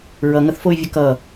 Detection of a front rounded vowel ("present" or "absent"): present